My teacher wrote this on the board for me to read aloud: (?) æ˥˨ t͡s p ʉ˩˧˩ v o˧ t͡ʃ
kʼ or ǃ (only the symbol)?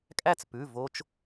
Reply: kʼ